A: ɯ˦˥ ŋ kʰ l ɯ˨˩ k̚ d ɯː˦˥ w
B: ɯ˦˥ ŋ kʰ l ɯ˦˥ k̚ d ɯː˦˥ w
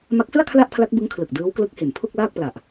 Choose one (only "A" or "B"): A